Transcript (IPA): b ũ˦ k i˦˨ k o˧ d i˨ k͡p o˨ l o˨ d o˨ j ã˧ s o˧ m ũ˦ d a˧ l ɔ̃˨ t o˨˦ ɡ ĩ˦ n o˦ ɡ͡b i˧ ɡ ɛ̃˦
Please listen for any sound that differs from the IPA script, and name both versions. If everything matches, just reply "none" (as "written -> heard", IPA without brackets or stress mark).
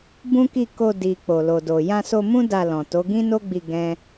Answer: none